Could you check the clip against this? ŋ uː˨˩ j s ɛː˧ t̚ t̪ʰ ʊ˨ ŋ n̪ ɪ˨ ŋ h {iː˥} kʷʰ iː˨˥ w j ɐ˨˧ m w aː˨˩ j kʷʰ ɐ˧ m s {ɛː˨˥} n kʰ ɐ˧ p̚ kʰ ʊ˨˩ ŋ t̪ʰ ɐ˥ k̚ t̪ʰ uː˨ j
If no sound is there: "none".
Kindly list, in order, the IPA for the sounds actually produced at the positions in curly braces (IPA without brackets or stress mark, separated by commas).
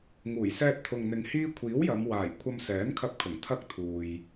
iː˥, ɛː˨˥